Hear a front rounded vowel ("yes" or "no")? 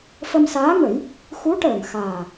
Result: no